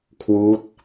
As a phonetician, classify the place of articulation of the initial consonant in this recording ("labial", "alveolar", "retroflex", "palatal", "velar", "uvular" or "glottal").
velar